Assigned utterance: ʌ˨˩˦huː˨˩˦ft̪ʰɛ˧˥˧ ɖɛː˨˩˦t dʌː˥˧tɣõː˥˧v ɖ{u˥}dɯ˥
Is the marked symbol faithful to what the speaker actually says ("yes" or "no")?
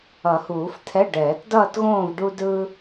yes